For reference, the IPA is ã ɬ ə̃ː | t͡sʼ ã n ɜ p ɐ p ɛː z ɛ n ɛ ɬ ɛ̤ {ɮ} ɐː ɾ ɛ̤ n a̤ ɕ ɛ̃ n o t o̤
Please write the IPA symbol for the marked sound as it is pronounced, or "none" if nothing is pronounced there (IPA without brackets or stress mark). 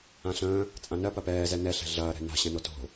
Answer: ɮ